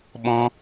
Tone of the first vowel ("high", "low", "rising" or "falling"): high